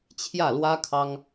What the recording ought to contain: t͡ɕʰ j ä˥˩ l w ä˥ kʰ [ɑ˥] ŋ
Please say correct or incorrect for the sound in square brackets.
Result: correct